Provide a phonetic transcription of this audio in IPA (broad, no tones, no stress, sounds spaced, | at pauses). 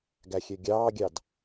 ɡ æ xʲ ø ɡʲ ɑː ɡʲ ɑ d